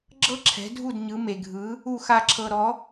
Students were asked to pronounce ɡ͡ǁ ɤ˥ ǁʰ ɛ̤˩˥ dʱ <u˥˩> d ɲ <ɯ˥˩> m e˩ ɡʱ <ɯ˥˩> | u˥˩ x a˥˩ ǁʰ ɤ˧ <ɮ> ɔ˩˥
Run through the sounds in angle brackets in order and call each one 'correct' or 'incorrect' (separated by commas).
correct, incorrect, incorrect, incorrect